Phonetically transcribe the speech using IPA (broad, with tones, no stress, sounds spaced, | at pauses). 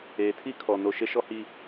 eː˨ tʰ i˦ kʰ ɔ˨ n o˨ ʃ e˦ ʃ ɔ˦ h iː˦